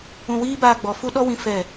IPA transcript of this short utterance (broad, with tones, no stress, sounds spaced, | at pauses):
ũ˧ w iː˦ b aː˧ ɡ͡b ɔ˨ f u˦ ɗ ɔ˦ w ĩ˧ f ɛ˦˨